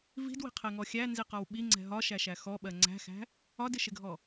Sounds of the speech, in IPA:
v i̤ d w i̤ qʰ ɛ ŋ ɔ xʲ æ n z i q ɒ w ɓ i ŋ͡ǀ ɛ̤ ɦ ɒ ʃ æ ʃ æ x ɔ ɓ ɜ ŋ͡ǀ æ̤ x æ̤ | ɒ d ɪ ʃ ɪ ɡʱ ɔ

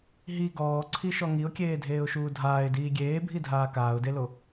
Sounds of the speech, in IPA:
ɦ i ɡ ɔː ǀʰ i ʃ ɔ ŋ i ʊ̯ kʲ eː dʱ eː ʊ̯ ʃ uː dʱ aː ɪ̯ d iː ɡʲ eː bʱ i dʱ aː k aː ʊ̯ d e l o

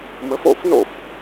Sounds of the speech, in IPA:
m ə˨˥ f o̰˥˩ f n o̰˥˩ f

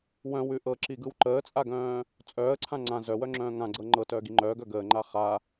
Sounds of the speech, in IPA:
w œ̃ w ʉ ʔ ɤ ǁ i ɡ ɯ w ǃ əː t͡sʼ a ɡ œ̃ː | t͡sʼ œː ə̯ ǀʰ ã ŋ͡ǀ ã z œ w œ ŋ͡ǁ œ̃ː ŋ ã ɡ͡ǀ ɤ ŋ͡ǃ ɤ t œː ɡ i ŋ͡ǃ œː ɡ œ ɡ əː ŋ͡ǃ a χ a

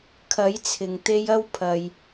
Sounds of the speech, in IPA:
kʰ ɐ˨˧ j t͡sʰ ɪ˨ ŋ t̪ e˧ j ɐ˥ w pʰ ɐ˧ j

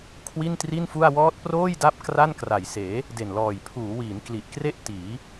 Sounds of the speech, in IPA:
kʰ w i˥˩ n t r i˥˩ n f u˥˩ a̯ w ɔː˦˥ t̚ p r oː˥˩ j d a˦˥ p̚ k r a˥˩ n k r a˨˩ j s eː˩˦ | d e˨˩ n l ɔː˨˩ j pʰ uː˩˦ w iː˩˦ n k l i˨˩ ʔ k r e˥˩ ʔ t iː˩˦

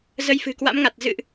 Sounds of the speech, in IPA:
z ə˧ j f ɨ̤˨˩ k w a̰˧˥ m ŋ a˨˩ t̚ z ɨ̰˧˨ ʔ

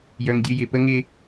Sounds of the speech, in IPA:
j œ˦ ŋ dʲ ɨ˦ j ɪ˨ p ə˦ ŋ ɪ˦

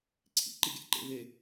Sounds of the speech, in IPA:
ǀʰ ḭ ǃ i ɡʲ æ̰ ǃ ḛ v e

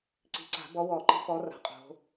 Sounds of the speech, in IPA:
ǀ i̤˨˩˦ ǀ a̤˨˩˦ b ɔ˨˦ w ɔ˨˩˦ ǃ i̤˨˦ f ɔ˨˦ r a̤˨˦ qʼ o̤˨˦

